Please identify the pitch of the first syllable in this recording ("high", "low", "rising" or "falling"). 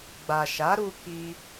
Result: low